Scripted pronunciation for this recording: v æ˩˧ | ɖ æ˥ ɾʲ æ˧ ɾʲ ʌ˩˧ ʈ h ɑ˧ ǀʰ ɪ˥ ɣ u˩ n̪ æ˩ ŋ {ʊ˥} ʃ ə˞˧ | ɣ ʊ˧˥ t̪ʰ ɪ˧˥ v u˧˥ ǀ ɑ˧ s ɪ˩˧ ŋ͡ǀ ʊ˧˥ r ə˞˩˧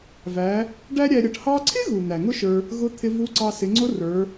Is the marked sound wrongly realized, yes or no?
no